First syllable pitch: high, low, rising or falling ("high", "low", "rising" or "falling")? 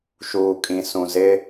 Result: low